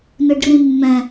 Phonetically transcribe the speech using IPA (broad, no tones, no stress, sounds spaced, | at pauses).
n ɯ ɖ r ĩ mː ɛ̃